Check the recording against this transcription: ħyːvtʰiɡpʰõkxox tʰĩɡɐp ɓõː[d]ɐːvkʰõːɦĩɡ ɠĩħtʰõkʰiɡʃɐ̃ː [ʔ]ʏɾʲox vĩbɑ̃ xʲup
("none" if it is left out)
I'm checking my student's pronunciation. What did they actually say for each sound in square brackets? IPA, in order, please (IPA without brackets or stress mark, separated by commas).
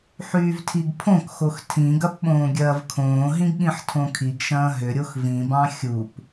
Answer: ɡʲ, ɦ